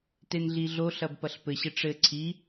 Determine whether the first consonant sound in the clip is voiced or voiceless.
voiceless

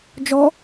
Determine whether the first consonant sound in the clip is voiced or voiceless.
voiced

